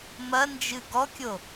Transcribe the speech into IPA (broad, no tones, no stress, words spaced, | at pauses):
mɐnd͡ʒɨ ɡɔkʲo